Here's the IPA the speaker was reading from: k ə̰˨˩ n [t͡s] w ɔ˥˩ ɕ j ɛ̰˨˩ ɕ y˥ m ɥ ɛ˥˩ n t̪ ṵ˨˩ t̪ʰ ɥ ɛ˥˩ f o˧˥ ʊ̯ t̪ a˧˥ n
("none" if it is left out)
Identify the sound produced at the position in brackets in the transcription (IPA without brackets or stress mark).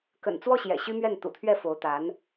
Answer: t͡s